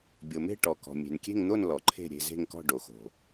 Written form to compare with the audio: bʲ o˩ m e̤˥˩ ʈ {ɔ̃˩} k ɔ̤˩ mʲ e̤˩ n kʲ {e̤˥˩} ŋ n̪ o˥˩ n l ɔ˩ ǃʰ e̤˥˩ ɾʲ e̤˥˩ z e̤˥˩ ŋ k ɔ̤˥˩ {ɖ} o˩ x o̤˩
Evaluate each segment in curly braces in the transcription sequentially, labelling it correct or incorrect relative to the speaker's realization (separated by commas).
incorrect, correct, correct